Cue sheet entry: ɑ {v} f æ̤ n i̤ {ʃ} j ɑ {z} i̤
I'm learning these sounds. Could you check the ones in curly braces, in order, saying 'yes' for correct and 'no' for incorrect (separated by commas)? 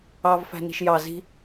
yes, yes, yes